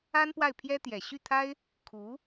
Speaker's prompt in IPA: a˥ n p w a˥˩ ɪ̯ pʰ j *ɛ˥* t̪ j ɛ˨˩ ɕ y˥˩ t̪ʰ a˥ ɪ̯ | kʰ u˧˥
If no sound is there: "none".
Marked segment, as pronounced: ɛ˥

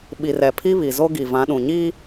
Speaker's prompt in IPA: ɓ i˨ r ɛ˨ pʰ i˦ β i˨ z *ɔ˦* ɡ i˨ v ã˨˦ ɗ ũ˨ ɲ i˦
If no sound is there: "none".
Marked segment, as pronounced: o˦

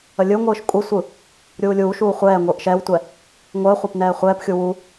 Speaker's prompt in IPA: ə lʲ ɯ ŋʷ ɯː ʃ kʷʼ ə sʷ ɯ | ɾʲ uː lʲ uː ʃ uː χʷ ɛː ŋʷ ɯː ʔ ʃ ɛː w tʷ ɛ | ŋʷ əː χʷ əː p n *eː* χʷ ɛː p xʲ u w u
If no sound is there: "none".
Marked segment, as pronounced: ɛː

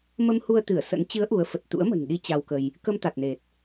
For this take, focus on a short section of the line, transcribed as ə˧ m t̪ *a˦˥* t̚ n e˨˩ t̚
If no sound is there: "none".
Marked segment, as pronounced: a˨˩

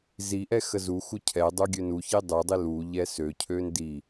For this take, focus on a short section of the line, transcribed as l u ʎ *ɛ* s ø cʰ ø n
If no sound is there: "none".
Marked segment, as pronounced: ɛ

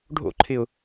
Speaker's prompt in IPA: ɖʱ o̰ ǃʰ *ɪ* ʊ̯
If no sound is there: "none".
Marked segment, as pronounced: ɪ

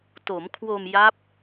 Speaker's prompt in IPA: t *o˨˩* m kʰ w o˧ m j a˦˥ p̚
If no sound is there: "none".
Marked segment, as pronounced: o˩˦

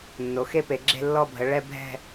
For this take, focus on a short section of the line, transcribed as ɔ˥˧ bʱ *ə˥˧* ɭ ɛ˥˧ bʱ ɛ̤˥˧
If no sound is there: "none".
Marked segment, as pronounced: ə˩˧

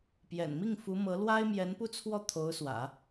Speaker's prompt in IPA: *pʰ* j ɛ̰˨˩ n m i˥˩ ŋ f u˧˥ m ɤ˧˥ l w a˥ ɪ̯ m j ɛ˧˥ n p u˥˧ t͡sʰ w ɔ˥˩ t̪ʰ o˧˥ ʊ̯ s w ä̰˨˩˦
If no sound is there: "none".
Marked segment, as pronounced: p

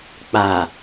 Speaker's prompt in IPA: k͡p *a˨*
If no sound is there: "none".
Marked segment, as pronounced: aː˨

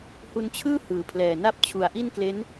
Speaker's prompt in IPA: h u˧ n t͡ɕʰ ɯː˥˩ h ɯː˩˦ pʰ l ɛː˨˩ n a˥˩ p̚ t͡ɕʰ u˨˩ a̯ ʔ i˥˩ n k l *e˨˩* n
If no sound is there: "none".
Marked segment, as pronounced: e˦˥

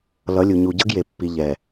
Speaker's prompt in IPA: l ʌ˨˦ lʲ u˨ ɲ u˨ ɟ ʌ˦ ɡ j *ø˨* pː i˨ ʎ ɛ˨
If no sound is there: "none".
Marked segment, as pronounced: e˨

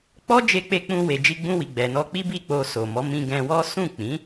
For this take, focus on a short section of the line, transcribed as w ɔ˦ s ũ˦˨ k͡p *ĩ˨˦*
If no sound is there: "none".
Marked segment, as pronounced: ĩ˨˦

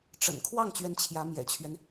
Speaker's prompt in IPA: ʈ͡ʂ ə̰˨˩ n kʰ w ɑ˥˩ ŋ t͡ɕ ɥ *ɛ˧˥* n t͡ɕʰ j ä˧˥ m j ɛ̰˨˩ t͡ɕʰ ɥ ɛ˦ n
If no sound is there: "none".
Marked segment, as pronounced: ɛ˧˥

